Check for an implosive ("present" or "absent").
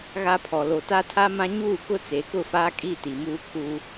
absent